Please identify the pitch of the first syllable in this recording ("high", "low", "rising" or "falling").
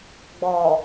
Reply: low